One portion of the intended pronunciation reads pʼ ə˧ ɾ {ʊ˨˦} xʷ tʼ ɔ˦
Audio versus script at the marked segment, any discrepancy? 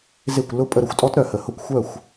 yes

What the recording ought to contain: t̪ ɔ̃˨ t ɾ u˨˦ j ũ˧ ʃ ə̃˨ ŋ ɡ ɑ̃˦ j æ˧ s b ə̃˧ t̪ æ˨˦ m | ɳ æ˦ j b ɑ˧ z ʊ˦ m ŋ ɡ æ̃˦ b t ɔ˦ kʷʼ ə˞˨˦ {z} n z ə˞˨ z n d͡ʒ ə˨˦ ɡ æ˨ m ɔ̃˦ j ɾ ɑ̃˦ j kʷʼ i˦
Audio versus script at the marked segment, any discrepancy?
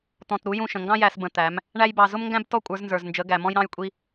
no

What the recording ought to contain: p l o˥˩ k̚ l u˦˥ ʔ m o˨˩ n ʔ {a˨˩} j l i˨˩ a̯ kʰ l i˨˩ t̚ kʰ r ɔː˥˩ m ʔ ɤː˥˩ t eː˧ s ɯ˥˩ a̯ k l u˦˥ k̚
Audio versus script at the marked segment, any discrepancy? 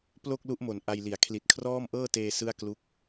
yes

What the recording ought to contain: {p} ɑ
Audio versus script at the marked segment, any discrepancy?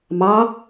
yes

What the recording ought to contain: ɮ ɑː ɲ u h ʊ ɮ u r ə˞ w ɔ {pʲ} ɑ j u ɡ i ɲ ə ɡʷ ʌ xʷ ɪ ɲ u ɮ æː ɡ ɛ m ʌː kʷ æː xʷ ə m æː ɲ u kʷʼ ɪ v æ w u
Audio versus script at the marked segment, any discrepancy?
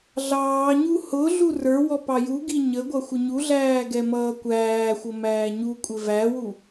yes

